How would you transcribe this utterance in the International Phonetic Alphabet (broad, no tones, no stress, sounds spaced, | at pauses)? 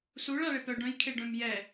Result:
s u ɭ a ɭ e p œ ɖ œ̃ j kʰ e ɖ œ̃ m j ɛ